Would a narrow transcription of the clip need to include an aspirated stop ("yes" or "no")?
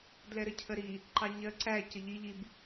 yes